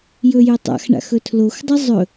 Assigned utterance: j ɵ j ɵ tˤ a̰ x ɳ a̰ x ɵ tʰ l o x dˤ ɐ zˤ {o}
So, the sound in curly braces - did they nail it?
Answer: no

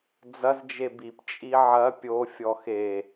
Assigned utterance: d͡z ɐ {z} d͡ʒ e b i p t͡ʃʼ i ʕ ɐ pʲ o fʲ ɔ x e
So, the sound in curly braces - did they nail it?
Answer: yes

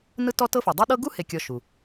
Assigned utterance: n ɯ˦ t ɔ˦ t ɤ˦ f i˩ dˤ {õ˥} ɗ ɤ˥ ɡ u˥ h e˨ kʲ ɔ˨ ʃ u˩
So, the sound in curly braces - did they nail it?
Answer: no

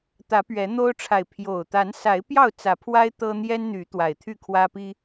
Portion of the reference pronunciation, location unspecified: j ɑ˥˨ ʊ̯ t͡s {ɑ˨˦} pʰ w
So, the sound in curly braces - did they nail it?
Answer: no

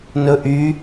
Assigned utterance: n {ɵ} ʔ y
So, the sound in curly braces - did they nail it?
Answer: yes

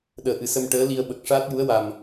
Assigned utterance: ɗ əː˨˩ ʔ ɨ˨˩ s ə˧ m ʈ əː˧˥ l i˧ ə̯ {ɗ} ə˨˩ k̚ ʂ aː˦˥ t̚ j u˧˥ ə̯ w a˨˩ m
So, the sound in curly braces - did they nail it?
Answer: no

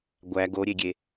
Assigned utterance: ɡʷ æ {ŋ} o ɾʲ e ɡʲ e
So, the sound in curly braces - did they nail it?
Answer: no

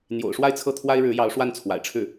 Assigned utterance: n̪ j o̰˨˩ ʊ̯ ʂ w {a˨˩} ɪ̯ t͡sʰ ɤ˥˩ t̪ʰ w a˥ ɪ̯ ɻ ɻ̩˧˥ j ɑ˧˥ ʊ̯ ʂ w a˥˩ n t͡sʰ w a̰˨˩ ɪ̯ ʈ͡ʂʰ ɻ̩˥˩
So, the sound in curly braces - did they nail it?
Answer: no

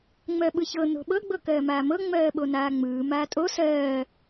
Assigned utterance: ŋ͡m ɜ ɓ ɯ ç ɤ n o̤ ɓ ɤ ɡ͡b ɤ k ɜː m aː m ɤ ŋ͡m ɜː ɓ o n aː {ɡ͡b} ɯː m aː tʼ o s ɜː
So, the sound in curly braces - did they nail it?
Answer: no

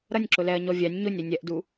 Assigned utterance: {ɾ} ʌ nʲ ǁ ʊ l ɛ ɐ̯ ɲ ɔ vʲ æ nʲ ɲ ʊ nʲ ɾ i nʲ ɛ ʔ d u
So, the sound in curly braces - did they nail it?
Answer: yes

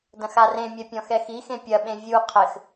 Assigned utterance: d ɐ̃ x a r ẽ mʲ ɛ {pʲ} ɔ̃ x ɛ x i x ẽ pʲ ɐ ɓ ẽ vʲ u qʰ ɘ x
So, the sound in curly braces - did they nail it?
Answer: yes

